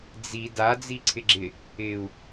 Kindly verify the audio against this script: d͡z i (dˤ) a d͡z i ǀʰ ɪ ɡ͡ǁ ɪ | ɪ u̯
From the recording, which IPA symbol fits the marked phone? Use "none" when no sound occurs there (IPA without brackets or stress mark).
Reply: d